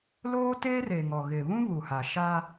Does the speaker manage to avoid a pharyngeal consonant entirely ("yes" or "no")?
yes